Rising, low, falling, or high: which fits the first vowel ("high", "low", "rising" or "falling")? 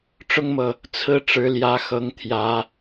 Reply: high